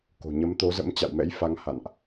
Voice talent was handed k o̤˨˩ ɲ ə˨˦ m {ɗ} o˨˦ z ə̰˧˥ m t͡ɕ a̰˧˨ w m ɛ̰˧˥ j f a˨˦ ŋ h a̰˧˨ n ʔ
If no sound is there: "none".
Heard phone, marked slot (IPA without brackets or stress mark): t̪